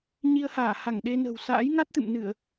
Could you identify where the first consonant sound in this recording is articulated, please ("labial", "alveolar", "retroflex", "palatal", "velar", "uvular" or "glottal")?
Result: palatal